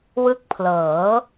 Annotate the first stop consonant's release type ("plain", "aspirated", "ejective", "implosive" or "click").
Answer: plain